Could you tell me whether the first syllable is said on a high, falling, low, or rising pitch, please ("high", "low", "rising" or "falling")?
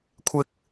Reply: low